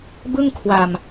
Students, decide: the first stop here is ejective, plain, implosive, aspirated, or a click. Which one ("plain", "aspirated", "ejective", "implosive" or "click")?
plain